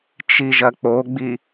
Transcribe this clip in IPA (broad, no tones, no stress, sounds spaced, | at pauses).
t͡ʃ i ʒ ɐ k͡p o ɡ͡b i